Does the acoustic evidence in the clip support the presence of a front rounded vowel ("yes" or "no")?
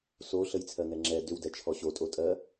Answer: yes